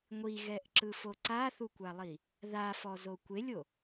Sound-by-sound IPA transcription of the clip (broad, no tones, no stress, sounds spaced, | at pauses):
ŋʷ i ɣ ɛ ʔ ǁ ɯ f o ǀ a θ u kʷ a lˠ i | ð a f ɔ z o kʷ e lʲ o